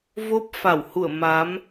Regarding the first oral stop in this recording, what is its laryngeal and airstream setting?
plain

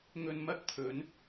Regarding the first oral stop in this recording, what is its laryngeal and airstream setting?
plain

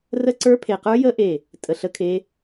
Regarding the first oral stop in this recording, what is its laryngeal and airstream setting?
click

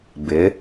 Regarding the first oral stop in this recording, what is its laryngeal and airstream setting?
plain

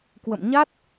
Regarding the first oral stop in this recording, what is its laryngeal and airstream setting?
plain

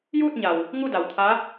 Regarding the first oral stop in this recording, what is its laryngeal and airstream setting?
plain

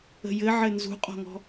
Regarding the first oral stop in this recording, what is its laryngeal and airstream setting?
ejective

